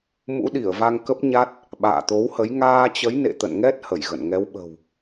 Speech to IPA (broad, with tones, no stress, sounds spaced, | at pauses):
m ṵ˧˥ ɗ i˧˩ ə̯ v a˧ ŋ k ə˦˥ p̚ ɲ a˦˥ t̚ | ɓ a̰ː˧˨ t̪ o˨˦ w h ə˨˦ j ŋ aː˧ t͡ɕ ə˨˦ j n ḛ˧˨ t̪ ə̰˧˨ n ŋ ɛ˦˥ t̚ h ə˧˩ j ɣ ə̰˧˨ n ŋ ɛ˨˦ w ɓ ə̤˨˩ w